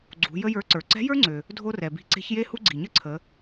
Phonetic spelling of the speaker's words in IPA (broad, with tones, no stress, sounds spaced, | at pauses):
ɡ͡ǀ ṳ˩˧ j ə˥ j ə˞˧˥ ǀ ə˞˩ ǀ ɛ̤˧˥ j ə˞˥ ŋ͡ǀ ø˩ | dʱ o˥ r ɛ˩ b i̤˧˥ ǀ e̤˧˥ ç j e˥ h u˥ ɡ͡ǀ i˩ ɲ ə˥ ǀʰ ə˩˧